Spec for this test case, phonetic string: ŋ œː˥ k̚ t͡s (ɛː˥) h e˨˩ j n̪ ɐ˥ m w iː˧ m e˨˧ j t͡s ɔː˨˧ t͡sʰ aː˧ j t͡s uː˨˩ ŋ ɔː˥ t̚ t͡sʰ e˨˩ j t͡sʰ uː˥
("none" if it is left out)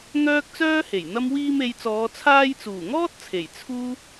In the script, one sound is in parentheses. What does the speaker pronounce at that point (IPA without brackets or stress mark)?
œː˥